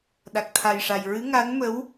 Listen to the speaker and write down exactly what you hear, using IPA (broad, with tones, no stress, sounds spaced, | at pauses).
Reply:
ɗ a˨˩ k̚ t̪ʰ a˨˩ j ʂ a˨˩ j ɹ ɨ˧˥ ŋ a˧˥ n m ə˧˥ w